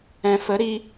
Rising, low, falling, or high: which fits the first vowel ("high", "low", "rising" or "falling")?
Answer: low